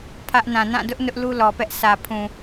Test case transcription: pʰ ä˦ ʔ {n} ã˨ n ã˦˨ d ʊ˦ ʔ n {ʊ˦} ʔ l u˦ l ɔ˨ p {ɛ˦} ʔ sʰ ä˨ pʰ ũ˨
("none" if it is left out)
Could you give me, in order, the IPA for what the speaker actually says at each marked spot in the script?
n, ʊ˦, ɛ˦

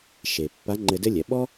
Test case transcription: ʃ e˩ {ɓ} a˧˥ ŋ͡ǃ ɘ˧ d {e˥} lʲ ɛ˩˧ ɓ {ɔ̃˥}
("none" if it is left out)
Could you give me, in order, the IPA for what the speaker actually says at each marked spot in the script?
pː, ɘ˥, ɔ˥

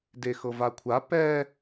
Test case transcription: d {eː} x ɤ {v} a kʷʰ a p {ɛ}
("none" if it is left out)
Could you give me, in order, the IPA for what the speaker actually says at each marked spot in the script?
e, v, ɛ

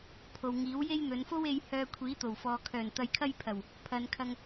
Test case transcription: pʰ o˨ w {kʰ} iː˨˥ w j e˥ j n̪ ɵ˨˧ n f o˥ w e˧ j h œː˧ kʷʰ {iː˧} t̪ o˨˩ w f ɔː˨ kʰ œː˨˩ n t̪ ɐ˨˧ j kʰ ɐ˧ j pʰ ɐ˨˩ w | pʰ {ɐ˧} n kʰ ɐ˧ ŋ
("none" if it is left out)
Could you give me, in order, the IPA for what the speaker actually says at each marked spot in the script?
ŋ, iː˨˥, ɐ˨˧

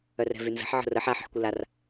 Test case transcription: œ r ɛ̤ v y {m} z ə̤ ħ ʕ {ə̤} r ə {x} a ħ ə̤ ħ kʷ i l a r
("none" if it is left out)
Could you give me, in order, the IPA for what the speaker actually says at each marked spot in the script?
n, ə̤, ħ

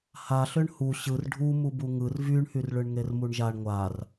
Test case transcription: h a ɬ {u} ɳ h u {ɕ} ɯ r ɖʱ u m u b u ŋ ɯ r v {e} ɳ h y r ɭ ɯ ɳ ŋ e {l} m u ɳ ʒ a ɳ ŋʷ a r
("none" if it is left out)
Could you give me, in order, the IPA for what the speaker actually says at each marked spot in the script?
ø, ɕ, y, r

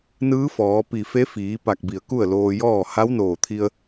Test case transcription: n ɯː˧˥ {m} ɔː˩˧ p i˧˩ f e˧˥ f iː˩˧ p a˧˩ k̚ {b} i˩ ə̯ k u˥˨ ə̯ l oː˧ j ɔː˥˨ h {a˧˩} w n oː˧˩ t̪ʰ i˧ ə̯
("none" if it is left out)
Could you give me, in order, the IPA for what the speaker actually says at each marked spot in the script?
f, b, a˧˥

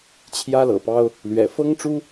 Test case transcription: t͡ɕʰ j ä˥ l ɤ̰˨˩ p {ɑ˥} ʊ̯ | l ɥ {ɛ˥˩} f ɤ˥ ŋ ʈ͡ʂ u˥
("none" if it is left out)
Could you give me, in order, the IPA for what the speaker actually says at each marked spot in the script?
ɑ˥, ɛ̰˨˩

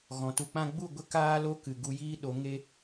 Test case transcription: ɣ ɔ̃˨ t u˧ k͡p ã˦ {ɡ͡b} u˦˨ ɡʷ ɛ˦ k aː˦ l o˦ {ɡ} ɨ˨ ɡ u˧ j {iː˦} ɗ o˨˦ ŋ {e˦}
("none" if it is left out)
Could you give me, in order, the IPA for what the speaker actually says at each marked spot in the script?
ɡ͡b, k, iː˦, e˦

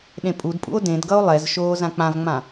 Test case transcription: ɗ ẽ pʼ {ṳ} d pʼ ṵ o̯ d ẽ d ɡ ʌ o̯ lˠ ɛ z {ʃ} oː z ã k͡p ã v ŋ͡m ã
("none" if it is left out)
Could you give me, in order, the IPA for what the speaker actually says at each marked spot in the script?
u, ʃ

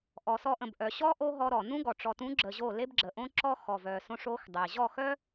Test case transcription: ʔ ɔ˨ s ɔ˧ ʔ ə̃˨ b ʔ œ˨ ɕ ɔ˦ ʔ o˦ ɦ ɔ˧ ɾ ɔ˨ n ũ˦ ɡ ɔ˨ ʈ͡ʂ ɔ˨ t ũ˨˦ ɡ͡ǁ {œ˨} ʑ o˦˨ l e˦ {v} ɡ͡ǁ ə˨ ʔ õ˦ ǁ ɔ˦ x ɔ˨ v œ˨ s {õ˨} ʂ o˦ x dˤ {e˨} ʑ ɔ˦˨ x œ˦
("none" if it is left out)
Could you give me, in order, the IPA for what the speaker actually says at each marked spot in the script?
ə˨, b, õ˧, e˨

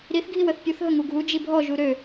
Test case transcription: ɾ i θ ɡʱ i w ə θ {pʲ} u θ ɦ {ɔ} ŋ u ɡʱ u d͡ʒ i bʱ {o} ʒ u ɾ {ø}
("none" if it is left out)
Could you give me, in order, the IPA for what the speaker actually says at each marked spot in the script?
pʲ, ə, ɔ, ø

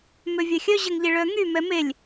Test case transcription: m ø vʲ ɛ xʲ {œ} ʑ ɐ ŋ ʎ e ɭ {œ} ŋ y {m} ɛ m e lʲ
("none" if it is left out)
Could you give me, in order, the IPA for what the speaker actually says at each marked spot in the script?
œ, œ, m

